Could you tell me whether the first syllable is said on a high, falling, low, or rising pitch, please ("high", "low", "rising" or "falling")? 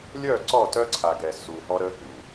falling